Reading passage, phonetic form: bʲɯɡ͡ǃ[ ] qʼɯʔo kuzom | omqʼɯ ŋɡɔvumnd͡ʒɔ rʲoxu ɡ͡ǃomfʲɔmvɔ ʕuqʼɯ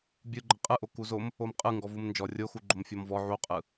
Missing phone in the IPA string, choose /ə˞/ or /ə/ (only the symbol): ə